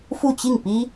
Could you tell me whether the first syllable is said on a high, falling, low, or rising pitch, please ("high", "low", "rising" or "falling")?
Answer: falling